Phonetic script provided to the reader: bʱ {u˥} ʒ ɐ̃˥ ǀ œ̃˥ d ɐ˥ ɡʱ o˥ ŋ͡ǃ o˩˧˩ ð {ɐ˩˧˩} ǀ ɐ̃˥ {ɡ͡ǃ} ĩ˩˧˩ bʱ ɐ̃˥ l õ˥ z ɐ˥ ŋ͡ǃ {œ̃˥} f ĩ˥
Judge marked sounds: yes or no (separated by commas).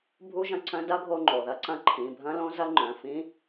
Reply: yes, no, no, no